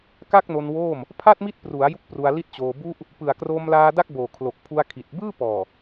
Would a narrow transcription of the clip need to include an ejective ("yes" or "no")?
no